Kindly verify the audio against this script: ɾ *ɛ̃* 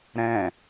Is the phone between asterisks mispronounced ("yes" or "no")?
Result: no